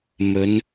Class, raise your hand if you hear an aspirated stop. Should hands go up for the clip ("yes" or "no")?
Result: no